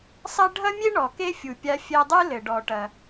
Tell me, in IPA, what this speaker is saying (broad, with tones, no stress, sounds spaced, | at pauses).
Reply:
sˤ ɐ˥ ɖʱ ɐ˥ mʲ e˥ ɳ ɔ˩ k e˥ fʲ u˩ pʲ a˧ fʲ ɛ˧ dˤ ɨ˥ l ɘ˩ ɖ ɔ˩ ʈ ɐ˩